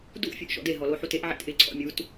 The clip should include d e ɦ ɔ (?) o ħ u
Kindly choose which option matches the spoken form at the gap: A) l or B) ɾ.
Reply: A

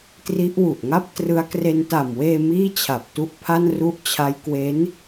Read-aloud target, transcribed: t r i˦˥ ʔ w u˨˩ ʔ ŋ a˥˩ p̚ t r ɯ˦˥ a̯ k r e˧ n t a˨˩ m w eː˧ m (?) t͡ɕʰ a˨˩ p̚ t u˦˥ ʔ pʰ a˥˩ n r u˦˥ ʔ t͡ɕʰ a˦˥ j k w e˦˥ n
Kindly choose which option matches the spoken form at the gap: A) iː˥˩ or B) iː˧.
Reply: A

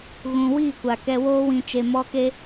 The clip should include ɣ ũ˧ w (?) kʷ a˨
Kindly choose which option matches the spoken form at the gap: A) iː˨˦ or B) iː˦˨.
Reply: B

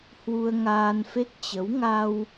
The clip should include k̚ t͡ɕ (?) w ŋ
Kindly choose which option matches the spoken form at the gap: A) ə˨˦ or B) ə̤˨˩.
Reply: A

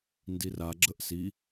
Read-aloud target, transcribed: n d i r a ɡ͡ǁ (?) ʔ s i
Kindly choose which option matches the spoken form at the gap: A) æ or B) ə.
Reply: B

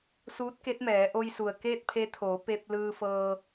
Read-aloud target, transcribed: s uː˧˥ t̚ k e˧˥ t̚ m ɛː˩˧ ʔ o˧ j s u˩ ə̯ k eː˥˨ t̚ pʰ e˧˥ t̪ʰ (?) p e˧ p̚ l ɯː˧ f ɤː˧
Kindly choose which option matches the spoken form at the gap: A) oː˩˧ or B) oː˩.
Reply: A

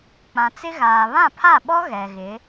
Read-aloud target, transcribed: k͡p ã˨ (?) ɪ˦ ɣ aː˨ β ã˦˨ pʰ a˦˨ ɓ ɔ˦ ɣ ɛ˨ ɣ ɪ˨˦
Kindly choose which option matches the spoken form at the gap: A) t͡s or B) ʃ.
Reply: A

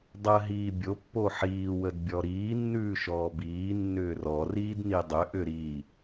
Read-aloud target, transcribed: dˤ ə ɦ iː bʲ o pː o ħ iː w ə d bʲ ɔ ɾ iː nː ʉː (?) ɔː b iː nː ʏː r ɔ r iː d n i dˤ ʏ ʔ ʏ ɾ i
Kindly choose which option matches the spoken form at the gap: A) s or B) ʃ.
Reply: B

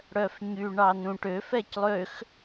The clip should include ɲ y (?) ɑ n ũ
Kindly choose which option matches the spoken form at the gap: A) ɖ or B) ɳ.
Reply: B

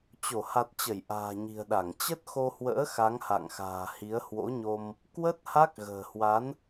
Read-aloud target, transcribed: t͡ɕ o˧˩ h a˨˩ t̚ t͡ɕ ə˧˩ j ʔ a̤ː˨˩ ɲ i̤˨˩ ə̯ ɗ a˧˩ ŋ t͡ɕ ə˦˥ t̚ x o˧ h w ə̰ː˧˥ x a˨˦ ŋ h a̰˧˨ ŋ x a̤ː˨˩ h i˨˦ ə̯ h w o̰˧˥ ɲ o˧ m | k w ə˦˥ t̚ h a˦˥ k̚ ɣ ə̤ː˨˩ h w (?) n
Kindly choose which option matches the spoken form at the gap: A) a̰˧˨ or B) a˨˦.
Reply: B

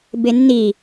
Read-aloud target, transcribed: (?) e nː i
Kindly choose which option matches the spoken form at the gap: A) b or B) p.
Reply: A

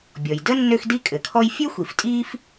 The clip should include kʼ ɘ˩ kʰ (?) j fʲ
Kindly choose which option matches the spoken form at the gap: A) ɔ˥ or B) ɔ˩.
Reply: A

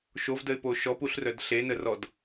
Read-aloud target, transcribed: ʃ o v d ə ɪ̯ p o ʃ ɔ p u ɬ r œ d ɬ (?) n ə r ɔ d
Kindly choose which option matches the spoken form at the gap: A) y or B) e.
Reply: B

